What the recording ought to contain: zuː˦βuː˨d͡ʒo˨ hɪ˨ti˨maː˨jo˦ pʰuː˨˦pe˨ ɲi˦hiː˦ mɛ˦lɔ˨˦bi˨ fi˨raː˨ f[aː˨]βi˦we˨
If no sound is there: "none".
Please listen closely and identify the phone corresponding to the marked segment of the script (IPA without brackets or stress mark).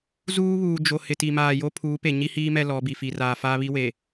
aː˦